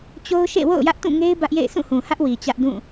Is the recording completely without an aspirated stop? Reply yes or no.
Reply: yes